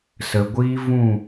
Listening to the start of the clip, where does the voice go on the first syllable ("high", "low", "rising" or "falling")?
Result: low